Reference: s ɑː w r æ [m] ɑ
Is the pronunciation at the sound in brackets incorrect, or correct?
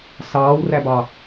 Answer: incorrect